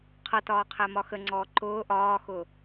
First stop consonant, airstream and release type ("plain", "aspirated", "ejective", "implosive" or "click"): aspirated